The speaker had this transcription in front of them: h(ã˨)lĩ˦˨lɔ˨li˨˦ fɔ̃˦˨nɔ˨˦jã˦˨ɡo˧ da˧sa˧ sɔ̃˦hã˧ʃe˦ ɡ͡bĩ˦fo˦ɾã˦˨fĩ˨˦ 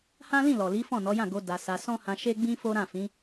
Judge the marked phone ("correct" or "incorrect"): incorrect